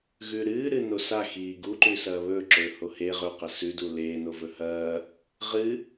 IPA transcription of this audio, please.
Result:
ɣ ʉ ɾ ɨː ɾ ɨ n o s a x iː ɡ u ǃ ʉ s ɐː β ɵː ǁ ɵː h o h e ʁ ɵ q ɐ s ʉ d u l eː n o v ɵ h ɐː | ʁ ɨ

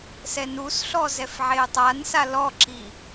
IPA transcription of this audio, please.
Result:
s ɛ n u s ɬ ɔ z ɛ f ʕ e ə̯ tˤ a n s a l ɔ ǁ i

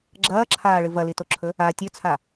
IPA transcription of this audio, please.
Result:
ɡ͡ǁ ɐː ǁʰ aː ɭ ɨ v ɐ l i t o ǁʰ ɵ | a tʲ ɵ t͡sʰ a

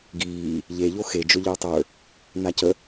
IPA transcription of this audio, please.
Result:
ɡ iː | ʎ e ʎ o x e d͡ʒ ɵ ʎ ə˞ tˤ ə˞ | n a c ə

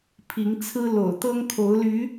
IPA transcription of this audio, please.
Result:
pʰ i˨˦ ŋ t͡sʰ ɹ̩˦ l o̰˨˩ ʊ̯ t̪ ɤ˦ ŋ kʰ o˨˦ ʊ̯ l y˨˦

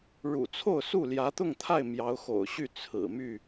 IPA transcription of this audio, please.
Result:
ɻ ṵ˨˩ t͡sʰ o˥˨ ʊ̯ s u˥˨ l j ä˨˦ t̪ ʊ˥˨ ŋ t̪ʰ a˥˨ ɪ̯ m j ɑ˨˦ ʊ̯ x o̰˨˩ ʊ̯ ɕ y˥˨ t͡sʰ ɹ̩˨˩ m y˥˨

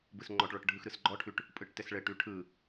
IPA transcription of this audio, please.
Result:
b ɯ s ŋ͡ǃ ɔ ʈ ɭ ɔ ʈ ɖʱ ɯ x ɾ ɯ s ɡ͡ǃ ɔ ʈʰ ʉ ʈ | pʼ ɯ ʈ t ɘ s ɭ ɘ ʈ ʉ ʈʰ ɯ

